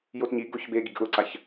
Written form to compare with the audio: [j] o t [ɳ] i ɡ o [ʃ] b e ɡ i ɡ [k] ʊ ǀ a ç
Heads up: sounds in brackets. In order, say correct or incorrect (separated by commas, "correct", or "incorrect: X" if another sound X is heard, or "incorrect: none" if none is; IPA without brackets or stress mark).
correct, incorrect: ɲ, incorrect: ç, incorrect: ʔ